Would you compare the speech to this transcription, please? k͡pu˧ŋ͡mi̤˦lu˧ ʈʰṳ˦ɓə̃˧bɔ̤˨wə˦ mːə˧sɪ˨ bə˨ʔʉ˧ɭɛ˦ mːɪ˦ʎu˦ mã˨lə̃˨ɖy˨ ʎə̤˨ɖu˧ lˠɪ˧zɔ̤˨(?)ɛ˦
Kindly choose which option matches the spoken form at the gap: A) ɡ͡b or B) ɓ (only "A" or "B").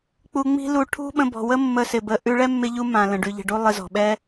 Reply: B